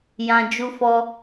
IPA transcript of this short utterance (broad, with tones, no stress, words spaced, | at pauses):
jã˧ d͡ʒu˧fɔ˧